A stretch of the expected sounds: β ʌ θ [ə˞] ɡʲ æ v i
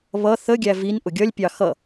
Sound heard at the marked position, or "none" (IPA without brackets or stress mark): ə